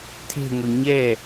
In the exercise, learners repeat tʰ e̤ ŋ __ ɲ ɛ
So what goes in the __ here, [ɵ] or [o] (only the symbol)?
ɵ